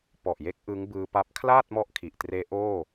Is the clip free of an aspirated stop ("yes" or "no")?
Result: no